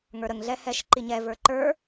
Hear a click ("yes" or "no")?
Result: yes